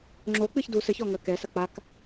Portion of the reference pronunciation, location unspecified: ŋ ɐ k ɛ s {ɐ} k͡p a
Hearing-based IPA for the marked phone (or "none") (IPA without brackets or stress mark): ɐ